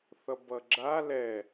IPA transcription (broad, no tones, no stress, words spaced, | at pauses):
θʌbʌɡ͡ǁa lɛ